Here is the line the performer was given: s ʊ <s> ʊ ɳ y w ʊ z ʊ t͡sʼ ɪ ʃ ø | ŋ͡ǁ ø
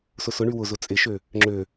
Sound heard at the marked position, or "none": s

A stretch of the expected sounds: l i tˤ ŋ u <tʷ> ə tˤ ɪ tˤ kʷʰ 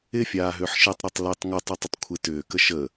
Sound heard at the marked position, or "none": tˤ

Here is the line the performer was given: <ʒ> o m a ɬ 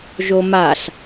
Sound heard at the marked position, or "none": ʒ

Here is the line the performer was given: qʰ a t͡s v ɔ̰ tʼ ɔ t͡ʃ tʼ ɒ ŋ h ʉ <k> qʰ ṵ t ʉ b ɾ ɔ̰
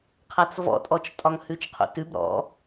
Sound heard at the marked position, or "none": t͡ʃ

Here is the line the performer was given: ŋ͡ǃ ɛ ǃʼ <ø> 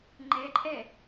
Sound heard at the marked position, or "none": ɛ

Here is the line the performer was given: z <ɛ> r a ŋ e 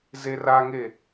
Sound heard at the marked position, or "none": e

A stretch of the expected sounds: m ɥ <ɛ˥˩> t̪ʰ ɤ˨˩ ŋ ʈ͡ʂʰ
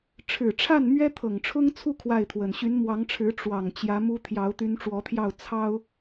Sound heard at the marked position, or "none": ɛ˥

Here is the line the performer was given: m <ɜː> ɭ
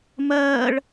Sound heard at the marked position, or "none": ɜː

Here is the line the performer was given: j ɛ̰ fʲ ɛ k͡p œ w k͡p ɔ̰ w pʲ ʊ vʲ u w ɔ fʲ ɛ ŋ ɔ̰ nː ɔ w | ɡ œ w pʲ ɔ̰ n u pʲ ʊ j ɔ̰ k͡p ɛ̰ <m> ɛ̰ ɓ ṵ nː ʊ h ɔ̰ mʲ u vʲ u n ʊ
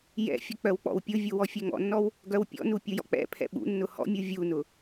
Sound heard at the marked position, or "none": pʰ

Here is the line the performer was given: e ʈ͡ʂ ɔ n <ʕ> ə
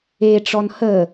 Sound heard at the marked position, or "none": h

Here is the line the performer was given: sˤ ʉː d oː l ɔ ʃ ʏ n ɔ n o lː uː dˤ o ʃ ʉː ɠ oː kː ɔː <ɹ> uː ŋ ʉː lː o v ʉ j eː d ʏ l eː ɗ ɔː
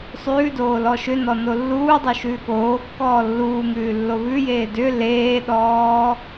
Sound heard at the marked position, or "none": lː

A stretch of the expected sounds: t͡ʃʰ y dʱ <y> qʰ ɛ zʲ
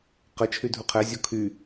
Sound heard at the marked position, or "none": u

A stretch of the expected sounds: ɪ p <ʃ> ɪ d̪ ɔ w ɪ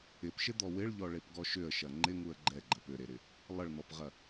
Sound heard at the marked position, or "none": ʃ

